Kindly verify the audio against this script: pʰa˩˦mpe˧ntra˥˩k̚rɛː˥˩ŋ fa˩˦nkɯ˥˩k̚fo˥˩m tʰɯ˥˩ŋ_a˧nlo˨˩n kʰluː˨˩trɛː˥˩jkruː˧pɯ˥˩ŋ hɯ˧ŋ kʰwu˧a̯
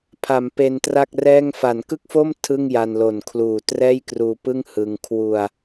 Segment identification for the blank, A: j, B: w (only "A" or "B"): A